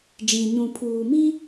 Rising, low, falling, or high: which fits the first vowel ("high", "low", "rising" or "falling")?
low